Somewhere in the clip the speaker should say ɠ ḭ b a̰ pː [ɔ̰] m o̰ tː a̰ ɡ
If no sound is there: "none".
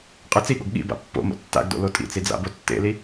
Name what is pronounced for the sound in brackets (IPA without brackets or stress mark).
o̰